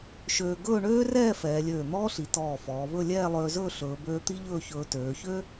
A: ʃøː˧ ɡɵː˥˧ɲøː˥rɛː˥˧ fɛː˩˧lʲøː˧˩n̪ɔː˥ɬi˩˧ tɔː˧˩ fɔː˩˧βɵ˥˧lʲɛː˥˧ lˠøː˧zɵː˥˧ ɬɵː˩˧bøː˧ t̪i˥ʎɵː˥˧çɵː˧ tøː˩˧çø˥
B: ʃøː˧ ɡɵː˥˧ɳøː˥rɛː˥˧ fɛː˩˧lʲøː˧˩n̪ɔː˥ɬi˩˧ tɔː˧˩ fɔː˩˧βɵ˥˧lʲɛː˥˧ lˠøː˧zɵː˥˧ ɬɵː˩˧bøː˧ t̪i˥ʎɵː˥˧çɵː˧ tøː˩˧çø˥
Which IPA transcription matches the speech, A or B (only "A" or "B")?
B